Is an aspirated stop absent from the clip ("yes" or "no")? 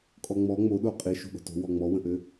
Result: yes